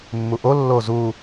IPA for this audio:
mː u ʔ o lː o z u

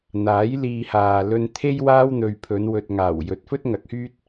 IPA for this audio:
n̪ aː˨˥ j l iː˧ h aː˨ l ɵ˧ n t̪ʰ e˥ j w aː˥ w n̪ ɵ˨ ɥ pʰ ɵ˨˧ n w ɵ˨ t̚ ŋ aː˨˩ w j ɵ˨˥ t̚ f ɵ˥ t̚ ŋ ɐ˨˥ k̚ h yː˥ t̚

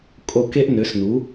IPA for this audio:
kʼ o˦˨ k e˥ ʔ n ø˩˥ s n u˩˥

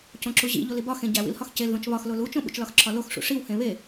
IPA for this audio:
c õ ǁ u ʑ ḭ ʎ o l i b ɒ x ẽ ɟ æ w ḭ l h ɒ x c e l ð õ t͡ʃ β ɒ x l o l u t͡ʃ õ ɓ ṵ t͡ʃ l ɒ x ǁʰ ɒ l o x ʂ ṵ ʂ i w h ẽ β e

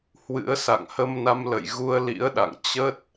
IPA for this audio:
h w ɨ̰˧˥ ə̯ s a̰˧˨ ŋ h ə˧ m n a˧ m l ə̰˧˨ j ɣ u˧ ə̯ l ḭ˧˥ ə̯ ɗ a̰˧˨ ŋ t͡ɕ ə˦˥ t̚

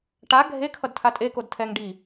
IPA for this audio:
ʈ a ɡʱ e kʰ ʌ d tʰ a tʼ e k o d tʰ ɛ ŋ ɖ i

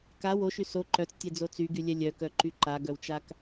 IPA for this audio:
k a w o ʃ y s o ǃ œ t͡s tʲ ɛ d͡z o t͡s y ɡ y lʲ ɛ lʲ œ k œ ǃ y ǃ a ɡ œ w t͡ʃ a k

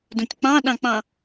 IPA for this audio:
d õ tʲ k͡p ɑ̃ ɗ ɑ̃ k͡p ɑ̃

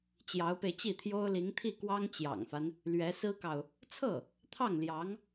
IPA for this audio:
t͡ɕ j ɑ˧˥ ʊ̯ p e˧ ɪ̯ t͡ɕ i˥˩ t̪ʰ j o˥ ʊ̯ l i˧˥ ŋ t̪ʰ i˥˩ k w ɑ˥ ŋ t͡ɕ j ɑ̰˨˩ ŋ f a˦ n | l ɥ ɛ˧˥ s ɹ̩˥ k ɑ˨ ʊ̯ | t͡sʰ ɤ˥˩ | t̪ʰ ɑ˥˩ ŋ l j ɑ˧˥ ŋ

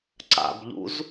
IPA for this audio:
ǀ a̰ b ʎ ṵ z

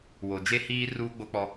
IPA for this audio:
w o˨ d͡ʒ e˦ h iː˦ r uː˦ ɡ͡b o˦ k͡p ɔ˦

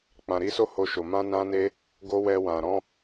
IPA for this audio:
k͡p ã˨ ɾ i˨˦ s o˦ h o˧ ʃ o˨ m ã˧ n ã˧ n e˧ | ɡ o˦ w ɛ˧ w ã˨ ɾ ɔ̃˧

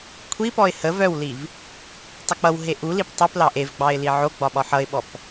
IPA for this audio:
kʷʰ i p ɔ ɪ̯ h ə v œ w l i v | tˤ u k͡p ʌ w ɦ e ʔ u l i p tˤ u p l ɑ ʔ e v ɡ͡b ɑ ɪ̯ l i ʕ o ɡ͡b ɒ ɓ ɒ ħ ʌ ɪ̯ ɓ ɔ p

